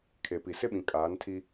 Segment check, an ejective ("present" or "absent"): present